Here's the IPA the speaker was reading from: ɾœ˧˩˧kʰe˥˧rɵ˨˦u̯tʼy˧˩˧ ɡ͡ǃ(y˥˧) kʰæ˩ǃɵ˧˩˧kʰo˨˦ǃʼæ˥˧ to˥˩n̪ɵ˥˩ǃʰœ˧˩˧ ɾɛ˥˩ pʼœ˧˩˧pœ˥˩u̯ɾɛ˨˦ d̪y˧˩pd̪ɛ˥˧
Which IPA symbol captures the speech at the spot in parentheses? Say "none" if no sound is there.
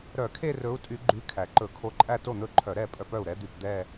y˨˦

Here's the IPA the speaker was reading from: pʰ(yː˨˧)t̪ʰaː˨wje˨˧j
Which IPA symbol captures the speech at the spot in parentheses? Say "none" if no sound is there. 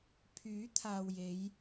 yː˨˥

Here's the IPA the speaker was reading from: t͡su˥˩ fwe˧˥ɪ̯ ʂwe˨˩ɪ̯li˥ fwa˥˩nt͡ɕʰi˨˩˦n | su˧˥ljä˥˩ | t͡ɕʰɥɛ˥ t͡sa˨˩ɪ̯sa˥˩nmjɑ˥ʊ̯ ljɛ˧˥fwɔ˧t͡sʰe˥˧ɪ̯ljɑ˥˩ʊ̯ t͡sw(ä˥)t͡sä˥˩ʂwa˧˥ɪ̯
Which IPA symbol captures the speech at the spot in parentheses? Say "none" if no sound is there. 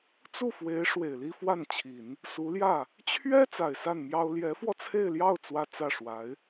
ä˥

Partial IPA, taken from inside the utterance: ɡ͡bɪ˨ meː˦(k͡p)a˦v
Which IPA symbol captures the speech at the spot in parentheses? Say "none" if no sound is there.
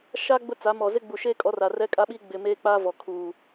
k͡p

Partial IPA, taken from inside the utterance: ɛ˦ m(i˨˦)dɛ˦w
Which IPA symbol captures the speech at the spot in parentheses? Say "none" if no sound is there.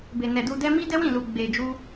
i˦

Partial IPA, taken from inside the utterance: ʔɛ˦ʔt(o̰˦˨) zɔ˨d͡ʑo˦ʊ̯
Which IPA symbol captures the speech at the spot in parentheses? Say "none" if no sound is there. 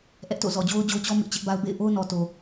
o̰˦˨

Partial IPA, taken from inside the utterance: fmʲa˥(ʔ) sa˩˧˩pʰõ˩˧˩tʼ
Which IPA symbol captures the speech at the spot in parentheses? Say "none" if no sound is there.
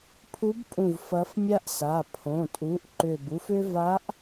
ʔ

